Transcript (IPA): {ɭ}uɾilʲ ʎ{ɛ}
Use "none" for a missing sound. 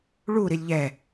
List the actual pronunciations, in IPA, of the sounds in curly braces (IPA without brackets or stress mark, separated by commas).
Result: ɭ, ɛ